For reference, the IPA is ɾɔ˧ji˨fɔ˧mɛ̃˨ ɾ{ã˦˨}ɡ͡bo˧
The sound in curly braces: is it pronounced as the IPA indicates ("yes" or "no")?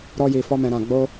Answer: no